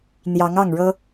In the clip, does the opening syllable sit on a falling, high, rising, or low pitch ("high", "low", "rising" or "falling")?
rising